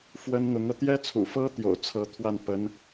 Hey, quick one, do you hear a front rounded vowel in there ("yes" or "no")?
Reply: no